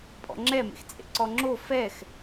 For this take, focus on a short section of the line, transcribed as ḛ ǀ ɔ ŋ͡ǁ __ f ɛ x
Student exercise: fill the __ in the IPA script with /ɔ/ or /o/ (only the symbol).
o